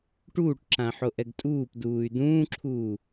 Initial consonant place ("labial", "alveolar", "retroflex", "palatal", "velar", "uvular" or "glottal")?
retroflex